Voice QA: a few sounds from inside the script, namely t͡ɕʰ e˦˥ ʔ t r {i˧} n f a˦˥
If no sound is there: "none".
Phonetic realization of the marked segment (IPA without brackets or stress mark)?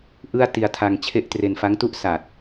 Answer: e˧